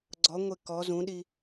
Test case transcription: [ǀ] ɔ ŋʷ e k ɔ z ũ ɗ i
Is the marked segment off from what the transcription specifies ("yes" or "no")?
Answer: yes